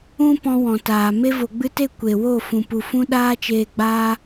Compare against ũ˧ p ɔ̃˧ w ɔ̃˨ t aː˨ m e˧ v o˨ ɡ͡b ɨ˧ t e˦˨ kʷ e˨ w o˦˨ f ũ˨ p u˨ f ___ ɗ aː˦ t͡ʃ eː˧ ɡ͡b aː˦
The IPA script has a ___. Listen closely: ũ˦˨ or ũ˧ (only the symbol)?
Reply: ũ˧